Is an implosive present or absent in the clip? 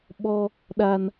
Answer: present